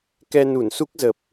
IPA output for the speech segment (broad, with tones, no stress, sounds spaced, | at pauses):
k ɛ˧ n u˧˩ n s u˦˥ k̚ z ə˨˩ p̚